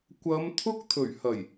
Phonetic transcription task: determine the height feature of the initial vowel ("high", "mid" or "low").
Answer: low